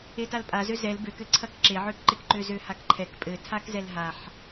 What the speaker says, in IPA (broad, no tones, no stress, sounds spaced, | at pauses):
e t a l pʼ a z ø z ɛ l b ø k ɘ ǀʰ ɐ k ǁ e ʕ ø k ǃ e k ǃ ø z ø h a k ǃʰ ɛ k pʼ ɘ tʰ a k z ɛ l ɦ a ħ